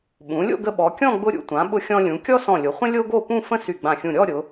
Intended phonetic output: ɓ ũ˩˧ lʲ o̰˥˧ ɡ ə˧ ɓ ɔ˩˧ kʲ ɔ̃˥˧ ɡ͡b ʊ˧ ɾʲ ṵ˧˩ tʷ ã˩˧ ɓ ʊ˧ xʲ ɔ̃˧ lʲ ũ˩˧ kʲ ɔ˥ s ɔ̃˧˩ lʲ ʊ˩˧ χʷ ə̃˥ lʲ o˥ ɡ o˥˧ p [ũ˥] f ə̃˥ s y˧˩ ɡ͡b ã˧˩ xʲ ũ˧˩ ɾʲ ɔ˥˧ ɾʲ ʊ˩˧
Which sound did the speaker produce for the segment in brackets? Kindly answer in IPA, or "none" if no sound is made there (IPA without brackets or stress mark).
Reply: ũ˥˧